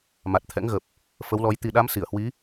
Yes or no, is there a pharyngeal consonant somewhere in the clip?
no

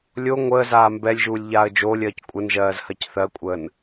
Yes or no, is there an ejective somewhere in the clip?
yes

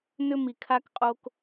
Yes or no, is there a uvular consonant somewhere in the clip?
yes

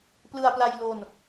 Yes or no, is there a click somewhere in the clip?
no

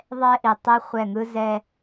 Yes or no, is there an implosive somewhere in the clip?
no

